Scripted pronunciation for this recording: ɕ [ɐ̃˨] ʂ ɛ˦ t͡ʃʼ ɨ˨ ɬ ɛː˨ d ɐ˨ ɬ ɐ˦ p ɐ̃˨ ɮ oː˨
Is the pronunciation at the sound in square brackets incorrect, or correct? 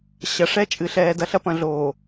incorrect